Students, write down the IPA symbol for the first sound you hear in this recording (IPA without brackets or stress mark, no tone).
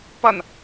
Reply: p